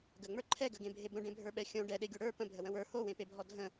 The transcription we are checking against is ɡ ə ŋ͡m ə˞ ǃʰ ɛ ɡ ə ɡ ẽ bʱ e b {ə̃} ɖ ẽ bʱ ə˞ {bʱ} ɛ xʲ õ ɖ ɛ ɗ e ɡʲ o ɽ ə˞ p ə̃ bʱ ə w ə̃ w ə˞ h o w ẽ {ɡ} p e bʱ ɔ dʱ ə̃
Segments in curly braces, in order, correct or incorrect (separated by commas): correct, incorrect, incorrect